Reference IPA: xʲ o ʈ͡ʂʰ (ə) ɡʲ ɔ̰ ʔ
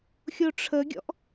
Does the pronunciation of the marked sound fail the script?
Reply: no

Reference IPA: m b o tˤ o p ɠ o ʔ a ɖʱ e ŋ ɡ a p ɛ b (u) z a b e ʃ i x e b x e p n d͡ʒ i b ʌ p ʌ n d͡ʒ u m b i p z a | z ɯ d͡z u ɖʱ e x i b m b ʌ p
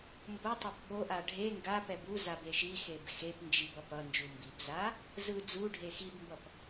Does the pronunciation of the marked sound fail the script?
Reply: no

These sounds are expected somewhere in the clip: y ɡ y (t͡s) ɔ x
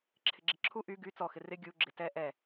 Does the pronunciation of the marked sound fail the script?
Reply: no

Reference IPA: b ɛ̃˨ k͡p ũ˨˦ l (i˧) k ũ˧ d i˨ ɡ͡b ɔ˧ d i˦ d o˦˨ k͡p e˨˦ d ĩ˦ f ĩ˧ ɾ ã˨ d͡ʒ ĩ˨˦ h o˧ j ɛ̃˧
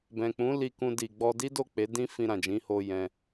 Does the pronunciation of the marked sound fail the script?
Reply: no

